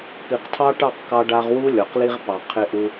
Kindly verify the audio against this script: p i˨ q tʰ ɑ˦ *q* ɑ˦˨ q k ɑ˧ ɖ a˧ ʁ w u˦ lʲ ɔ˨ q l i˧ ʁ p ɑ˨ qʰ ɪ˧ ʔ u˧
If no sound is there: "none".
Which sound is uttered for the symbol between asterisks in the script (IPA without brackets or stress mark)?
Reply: ʈ